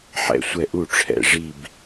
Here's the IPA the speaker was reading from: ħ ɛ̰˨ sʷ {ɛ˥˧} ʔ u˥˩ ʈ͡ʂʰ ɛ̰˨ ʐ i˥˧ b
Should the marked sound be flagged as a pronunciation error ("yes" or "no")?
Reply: yes